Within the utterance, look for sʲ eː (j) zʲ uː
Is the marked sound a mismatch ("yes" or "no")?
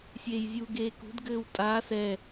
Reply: no